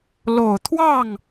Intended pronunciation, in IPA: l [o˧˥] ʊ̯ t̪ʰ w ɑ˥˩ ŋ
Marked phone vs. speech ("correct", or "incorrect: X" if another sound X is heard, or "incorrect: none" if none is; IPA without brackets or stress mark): incorrect: o˨˩